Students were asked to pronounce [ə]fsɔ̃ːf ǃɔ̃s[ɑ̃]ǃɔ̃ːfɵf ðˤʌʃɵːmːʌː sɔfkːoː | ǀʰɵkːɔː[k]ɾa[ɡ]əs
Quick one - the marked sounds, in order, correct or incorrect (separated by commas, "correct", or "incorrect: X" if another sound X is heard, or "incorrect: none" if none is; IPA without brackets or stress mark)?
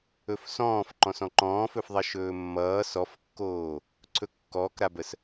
incorrect: ɵ, incorrect: ɔ̃, correct, incorrect: b